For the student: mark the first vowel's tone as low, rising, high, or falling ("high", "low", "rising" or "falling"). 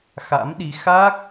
rising